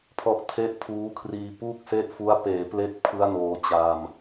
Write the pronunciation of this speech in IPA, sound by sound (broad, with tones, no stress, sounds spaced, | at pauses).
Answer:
pʰ ɔ˦˥ ʔ tʰ e˥˩ ʔ pʰ uː˦˥ kʰ r iː˧ p uː˥˩ k̚ s e˥˩ ʔ f u˦˥ a̯ p eː˩˦ p l e˦˥ k̚ pʰ ɯ˦˥ a̯ n oː˧ t͡ɕ a˧ m